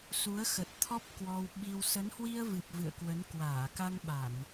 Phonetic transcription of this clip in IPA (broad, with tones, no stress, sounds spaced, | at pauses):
s u˨˦ ə̯ x ə˨˩ t̚ t̪ʰ ɔ˦˥ p̚ k w ɔ˧ w ɓ i˧ w s ə˨˦ n h w i˧ ə̯ v ɨ˨˩ p̚ v ɨ̰˧˨ ə̯ k w ə˨˦ n k w aː˧˩ k a˧ ŋ ɓ a˧˩˨ n